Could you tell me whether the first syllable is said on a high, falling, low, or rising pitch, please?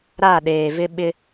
falling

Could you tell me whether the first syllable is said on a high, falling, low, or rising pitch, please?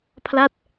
falling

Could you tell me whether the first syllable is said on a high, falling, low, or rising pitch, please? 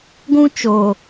high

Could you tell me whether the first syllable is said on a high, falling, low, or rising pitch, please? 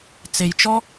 low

